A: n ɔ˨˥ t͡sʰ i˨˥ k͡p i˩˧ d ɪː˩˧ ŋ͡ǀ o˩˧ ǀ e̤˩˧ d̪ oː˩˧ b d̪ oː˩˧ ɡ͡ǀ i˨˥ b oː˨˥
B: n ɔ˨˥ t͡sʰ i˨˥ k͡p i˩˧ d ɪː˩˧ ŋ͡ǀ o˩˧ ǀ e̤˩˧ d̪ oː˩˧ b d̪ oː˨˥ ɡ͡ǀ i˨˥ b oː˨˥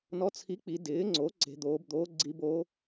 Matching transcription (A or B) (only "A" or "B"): B